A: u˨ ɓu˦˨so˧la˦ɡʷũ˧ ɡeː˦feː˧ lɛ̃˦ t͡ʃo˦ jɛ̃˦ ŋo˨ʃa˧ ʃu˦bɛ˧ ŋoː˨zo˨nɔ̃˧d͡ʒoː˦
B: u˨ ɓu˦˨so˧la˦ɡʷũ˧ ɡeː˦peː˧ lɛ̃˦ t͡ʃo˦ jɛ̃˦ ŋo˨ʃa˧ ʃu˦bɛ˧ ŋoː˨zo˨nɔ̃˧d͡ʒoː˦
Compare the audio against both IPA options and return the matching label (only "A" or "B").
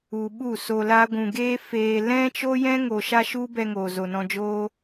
A